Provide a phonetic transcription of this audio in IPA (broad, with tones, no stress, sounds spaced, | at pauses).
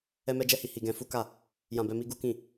ɛ˦ m ɛ˦ d͡ʒ ɛ˦ h i˧ h i˧ ɡ ɛ̃˧ f u˦ k a˦˨ | j ã˧ b ɛ˧ m i˧ ɡ u˦ k ĩ˦˨